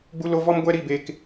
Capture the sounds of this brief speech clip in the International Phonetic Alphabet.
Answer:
ɡ͡b u˧ l o˧ v ɔ˦ m ɡʷ ɛ˦ ɾ i˦˨ b e˧ k

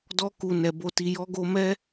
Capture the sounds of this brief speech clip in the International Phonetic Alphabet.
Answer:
d ɔ˧ k u˨ n ɛ˨ b o˨ t i˨ j ɔ˨˦ ɡ o˧ m ɛ˦

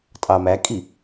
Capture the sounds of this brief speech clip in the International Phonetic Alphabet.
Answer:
tʼ ɑ m æ kʼ i

